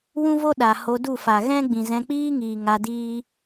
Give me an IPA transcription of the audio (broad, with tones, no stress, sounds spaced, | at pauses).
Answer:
w ũ˦ v o˦ ɗ a˨ h o˧ d u˦˨ f a˨ ɣ ɛ̃˦ ɡ͡b ĩ˨ z ɛ̃˧ k͡p iː˦ ŋ iː˨ ŋ a˧ d iː˦